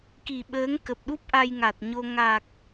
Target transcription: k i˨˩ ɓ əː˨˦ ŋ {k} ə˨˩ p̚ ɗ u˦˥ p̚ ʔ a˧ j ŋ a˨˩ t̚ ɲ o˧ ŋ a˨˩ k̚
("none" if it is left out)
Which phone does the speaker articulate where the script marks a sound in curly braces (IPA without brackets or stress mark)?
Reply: k